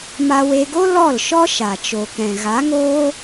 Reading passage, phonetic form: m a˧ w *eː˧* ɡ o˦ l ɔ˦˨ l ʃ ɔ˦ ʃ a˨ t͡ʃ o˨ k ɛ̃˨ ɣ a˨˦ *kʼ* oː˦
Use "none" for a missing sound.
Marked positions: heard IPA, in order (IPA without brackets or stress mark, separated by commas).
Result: e˧, ŋ